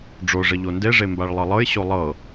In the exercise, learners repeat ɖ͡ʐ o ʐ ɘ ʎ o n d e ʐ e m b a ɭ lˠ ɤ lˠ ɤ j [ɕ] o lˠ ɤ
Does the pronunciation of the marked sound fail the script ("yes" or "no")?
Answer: no